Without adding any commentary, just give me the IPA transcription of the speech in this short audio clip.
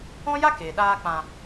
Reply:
ɔ̃˦ j a˦ k e˨ ɗ aː˧ k͡p ã˨

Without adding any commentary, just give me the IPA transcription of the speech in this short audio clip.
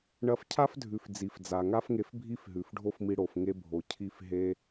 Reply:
ɳ ɐ˧ f cʰ a˦ f dʱ ʉ˨ f d͡z i˨ f d͡z a˨ ŋ a˦ f ŋ e˧ f bʱ i˦ f ɦ ʉ˨ f ɖʱ o˦ f m i˧ ɽ o˨ f ŋ e˧ bʱ o˨ cʰ i˧ f ɦ e˦

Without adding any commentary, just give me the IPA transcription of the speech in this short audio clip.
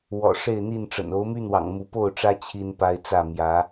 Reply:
w ɔ̰˨˩ ʂ e˥˨ ɪ̯ n̪ i˥˨ n ʈ͡ʂ ə̰˨˩ n o˨˦ ʊ̯ m y˦ n̪ w ɑ̰˨˩ ŋ m u˨˦ p o˥˨ ʊ̯ ʈ͡ʂ ä˦ t͡ɕʰ i˦ n p a˦ ɪ̯ t͡s ä˥˨ m j ä˨˦

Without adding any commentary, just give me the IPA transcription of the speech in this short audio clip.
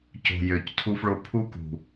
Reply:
c o̤˧ j ø˨ c tʰ u˦ f ɭ o˦ pʰ u˦ k ṳ˨

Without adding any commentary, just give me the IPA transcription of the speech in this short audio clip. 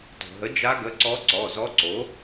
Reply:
t o̤˩ ɦ ə˩˥ d͡ʒ a˧˥ ɡ ə˩˧˩ ǀ ɔ˧˥ ǀ ɔ˩˧˩ z ɔ˧˥ ǀ o˩˥

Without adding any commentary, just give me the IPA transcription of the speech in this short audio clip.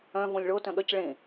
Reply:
œ̃ v õ lʲ ɭ o t œ̃ ɠ œ c ɭ ẽ

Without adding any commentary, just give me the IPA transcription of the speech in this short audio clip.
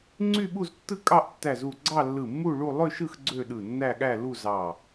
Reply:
ŋ͡ǀ y˥˧ ɓ u˥˧ z tː ɯ˥˧ kʼ ɑ˥˧ ʔ tː æ˧˩ z u˧˩ ɡ͡ǀ ɑ˥˧ lː ɯ˧˩ mː u˥˧ ɭ u˥˧ lˠ ø˥˧ ʃ ɯ˥˧ x ɡ͡ǀ ø˥˧ ɗ ɯ˧˩ nː æ˥˧ ɠ æ˥˧ l u˥˧ z ɑ˧˩

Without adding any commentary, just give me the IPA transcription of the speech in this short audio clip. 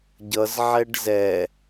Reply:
ɟ ʌ z ʕ ɛ ɖ z ɛ

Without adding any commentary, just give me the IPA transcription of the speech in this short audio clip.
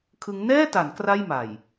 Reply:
kʰ ɯ˦˥ ŋ n ɛː˥˩ t a˩˦ n k r a˥˩ j m a˨˩ j

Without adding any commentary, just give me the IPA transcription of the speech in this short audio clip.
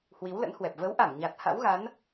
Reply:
h w i˨˦ w l ə̰˧˥ n h w ɛ˨˩ p̚ v ə˨˦ w ʔ a˧˩ m ɲ a˨˩ t̚ h a̰˧˥ w ɣ a˨˦ n

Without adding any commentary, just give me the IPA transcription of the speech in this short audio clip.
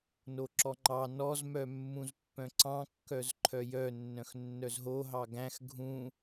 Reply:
n o ǁ ɔ ŋ͡ǃ ɑ n ɔ z m œ mː ũ z pː œ̃ ǀ ɑ̃ kː œ z ǃʰ œ j œ nː œ̃ x nː œ z ɦ o ɦ ɑ ɡ æ̃ x ɡʱ ũ

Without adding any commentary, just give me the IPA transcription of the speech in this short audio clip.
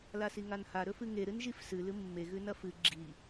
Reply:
l a s i ŋ a n h a ɾ ɵ f ɨ ŋ e ɾ ɨ n ʒ i f s ɨ l ɨ mː e ɣ ʉ n ɐ f ɨ ɡ͡ǁ i

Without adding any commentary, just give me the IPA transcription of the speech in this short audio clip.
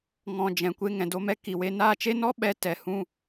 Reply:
ŋ ɔ̃˨ d͡ʒ ɛ̃˨ kʷ e˧ ŋ ɛ̃˨ d o˧ m ɛ˦ k i˨ w e˧ n aː˦˨ t͡ʃ e˦ n ɔ˦ ɓ ɛ˨˦ t ɛ˨ h ũ˦

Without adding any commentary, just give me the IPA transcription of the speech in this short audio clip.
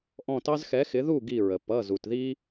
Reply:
ʔ ɔ̃˧˩ t ɑ˦ z x ɛ˩˥ x ɪ˩˥ ð u˥˩ ɡ i˧˩ ɹ ə˩ p ʌ˩˧˩ z u˩ t ð i˦

